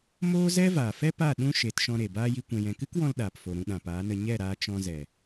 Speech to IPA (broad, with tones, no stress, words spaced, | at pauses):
moː˦ zɛ˦vaː˨fɛ˦pa˦˨ ɗũ˦ ʃe˨˦tʃɔ̃˧ɾe˨ baː˦ji˧ kʷɛ̃˨jɛ̃˨kɨ˦kwɔ̃˧l ɗaː˨pfo˨ɾũ˧ ɗã˨paː˨˦nə˧ ɲɛ˦˨ɾaː˧ t͡ʃɔ̃˧zɛ˨